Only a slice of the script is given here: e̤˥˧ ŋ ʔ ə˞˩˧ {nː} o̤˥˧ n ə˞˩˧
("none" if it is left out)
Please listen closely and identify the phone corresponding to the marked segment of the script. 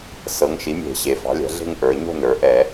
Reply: ɲ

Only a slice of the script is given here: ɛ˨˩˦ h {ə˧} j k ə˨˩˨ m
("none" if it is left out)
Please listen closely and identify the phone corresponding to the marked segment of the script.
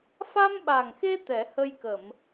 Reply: ə˧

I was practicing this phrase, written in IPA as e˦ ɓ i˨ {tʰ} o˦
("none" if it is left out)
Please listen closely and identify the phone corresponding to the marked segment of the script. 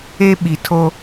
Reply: tʰ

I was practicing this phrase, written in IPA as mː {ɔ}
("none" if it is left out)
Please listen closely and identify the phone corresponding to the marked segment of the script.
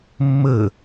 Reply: ə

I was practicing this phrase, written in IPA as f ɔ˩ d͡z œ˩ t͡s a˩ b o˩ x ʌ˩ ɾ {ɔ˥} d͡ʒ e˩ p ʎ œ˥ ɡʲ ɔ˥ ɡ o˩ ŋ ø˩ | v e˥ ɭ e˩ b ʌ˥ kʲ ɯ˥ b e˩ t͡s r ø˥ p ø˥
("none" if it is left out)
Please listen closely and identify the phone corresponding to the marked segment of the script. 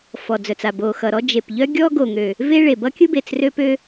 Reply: ɔ˥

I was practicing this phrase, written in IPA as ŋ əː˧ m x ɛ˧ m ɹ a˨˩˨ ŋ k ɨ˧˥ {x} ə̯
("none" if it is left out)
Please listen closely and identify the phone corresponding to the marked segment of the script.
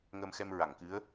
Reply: none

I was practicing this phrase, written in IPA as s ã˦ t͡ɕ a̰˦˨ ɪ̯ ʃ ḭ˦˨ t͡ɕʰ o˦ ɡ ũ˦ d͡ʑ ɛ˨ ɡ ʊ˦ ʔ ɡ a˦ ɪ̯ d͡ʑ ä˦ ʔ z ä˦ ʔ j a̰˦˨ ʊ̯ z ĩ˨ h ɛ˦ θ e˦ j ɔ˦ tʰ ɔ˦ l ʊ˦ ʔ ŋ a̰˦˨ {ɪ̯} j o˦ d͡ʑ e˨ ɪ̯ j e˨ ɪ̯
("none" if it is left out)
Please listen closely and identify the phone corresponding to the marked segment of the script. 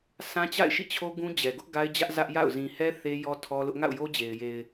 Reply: ʊ̯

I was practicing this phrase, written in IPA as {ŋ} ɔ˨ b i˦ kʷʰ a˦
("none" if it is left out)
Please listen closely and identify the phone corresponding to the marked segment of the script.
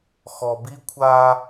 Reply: x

